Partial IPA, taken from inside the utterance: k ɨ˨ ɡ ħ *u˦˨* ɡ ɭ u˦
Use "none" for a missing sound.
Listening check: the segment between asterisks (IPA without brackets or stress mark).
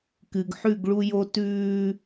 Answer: ʉ˦˨